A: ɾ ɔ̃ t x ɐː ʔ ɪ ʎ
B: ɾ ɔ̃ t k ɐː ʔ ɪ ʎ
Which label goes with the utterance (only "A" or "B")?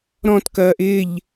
B